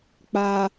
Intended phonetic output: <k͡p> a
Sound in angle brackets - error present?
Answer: no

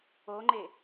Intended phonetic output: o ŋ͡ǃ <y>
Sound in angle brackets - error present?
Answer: yes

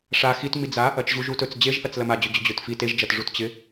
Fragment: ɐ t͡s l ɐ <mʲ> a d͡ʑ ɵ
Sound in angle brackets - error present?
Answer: yes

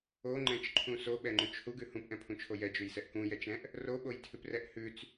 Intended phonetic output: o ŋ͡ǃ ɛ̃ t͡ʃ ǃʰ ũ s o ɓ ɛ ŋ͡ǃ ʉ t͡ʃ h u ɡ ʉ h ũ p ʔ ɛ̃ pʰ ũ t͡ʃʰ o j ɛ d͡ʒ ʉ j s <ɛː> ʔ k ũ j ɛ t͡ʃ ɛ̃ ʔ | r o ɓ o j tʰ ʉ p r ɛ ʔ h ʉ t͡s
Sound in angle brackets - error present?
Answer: yes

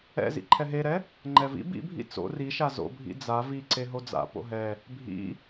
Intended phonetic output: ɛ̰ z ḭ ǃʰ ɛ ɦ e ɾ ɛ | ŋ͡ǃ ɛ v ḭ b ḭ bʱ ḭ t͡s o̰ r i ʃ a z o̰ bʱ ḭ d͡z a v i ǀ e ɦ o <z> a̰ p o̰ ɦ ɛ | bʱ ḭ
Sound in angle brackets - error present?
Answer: yes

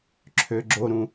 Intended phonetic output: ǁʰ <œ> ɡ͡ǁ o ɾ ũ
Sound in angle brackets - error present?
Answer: yes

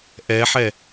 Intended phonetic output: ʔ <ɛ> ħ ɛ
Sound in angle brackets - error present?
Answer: no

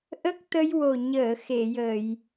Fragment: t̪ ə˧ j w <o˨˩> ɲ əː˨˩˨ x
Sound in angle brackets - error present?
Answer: no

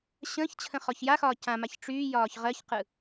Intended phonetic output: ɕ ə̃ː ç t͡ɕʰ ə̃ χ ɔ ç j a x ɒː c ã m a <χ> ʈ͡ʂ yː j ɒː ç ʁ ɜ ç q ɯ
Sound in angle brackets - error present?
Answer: yes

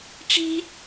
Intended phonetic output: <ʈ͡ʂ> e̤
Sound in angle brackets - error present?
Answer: no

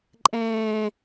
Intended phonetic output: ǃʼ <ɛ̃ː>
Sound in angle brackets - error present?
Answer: no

